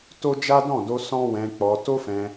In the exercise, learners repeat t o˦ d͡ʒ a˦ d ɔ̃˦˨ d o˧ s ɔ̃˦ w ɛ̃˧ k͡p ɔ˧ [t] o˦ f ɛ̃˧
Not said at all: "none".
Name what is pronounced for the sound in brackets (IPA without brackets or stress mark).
t